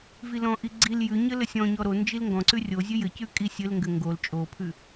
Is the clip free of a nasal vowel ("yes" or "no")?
no